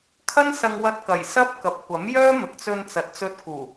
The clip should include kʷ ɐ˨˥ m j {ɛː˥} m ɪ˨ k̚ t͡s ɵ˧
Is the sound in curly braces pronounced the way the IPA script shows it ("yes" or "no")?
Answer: no